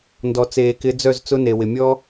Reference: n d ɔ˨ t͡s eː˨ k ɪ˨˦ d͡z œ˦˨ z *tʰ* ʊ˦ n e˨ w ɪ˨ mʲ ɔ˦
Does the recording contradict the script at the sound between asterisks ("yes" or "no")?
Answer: yes